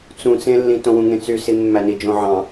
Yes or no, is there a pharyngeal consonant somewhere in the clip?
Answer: yes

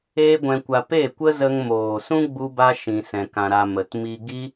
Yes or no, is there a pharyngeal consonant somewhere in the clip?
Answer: no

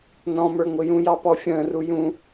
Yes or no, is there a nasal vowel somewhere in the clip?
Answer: yes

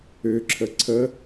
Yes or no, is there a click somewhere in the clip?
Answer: yes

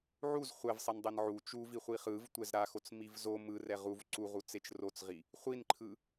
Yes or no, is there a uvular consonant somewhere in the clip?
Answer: yes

